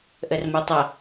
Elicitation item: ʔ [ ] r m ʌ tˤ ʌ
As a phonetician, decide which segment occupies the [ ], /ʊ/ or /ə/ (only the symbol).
ə